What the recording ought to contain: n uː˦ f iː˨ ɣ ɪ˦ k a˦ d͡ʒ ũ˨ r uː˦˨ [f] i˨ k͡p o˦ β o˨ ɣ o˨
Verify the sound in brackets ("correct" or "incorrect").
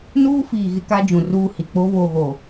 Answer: incorrect